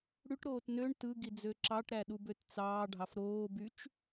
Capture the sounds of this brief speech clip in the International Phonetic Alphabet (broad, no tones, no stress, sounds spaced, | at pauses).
ɽ y ʈ ɾ oː t n ø ɳ t ɯ ɡ i d͡z ø ǁ ɑ ʈ ɾ æ ɗ u b ø t t͡s ɑː ɖʱ ɑ f ɾ oː b y t͡ʃ